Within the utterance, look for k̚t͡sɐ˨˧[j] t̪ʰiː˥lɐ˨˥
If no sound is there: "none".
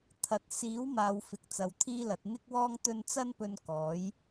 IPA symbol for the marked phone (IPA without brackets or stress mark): w